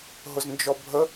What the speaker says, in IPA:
ɦ ʊ z n d͡ʒ ɔ bʱ ə

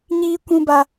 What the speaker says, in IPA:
ɲ iː˦ kʷ ũ˦ b a˦

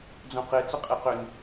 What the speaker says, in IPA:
d͡z õ q e t͡s ə qʼ e q ʏ n

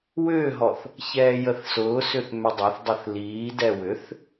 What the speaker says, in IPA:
w ʏː ɦ ɔ θ | ç ɛː j ə θ s ʊː s ʏ θ m ʏ dˤ ɐ θ dˤ ɛ θ l iː d ɛ w ʏ θ

